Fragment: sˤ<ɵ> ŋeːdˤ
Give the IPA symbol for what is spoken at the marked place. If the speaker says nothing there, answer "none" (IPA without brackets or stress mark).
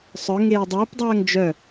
œ